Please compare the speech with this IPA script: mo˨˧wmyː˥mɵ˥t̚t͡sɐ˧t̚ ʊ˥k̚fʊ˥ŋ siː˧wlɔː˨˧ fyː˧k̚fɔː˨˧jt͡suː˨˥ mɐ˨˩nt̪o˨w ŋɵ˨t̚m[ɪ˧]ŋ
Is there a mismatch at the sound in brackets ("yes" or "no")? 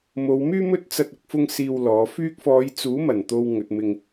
no